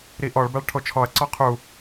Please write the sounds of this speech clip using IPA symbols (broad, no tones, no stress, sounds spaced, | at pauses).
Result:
ɾ i ʔ ɔ ɭ b a ɭ ʈʰ o t͡ʃʰ ɔ ɐ̯ ǀ ɔ qʰ u